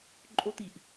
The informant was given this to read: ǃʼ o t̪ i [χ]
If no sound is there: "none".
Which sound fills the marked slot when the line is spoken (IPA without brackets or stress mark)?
ʔ